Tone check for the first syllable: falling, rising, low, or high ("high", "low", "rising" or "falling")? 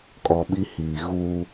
low